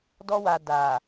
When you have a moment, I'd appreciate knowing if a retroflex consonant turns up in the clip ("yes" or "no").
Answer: no